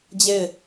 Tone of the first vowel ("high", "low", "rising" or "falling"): falling